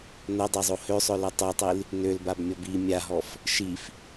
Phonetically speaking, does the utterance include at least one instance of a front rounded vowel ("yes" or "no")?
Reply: yes